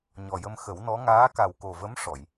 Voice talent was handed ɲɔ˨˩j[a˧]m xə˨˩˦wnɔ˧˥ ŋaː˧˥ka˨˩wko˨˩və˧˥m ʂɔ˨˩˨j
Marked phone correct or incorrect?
incorrect: ə˧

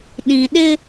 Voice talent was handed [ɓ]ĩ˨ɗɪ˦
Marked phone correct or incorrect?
incorrect: ɗ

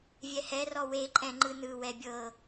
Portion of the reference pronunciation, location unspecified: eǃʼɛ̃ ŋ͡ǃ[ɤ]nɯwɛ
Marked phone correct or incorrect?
incorrect: ɯ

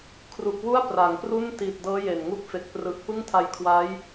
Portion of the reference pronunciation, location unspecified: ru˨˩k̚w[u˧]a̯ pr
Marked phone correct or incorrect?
incorrect: u˥˩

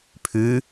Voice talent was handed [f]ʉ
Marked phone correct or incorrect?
incorrect: pʰ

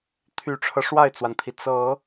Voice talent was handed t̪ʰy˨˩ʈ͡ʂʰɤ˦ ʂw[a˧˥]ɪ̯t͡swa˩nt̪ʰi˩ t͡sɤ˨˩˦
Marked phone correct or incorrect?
incorrect: a˥˩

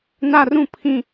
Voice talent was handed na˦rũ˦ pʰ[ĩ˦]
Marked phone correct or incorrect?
correct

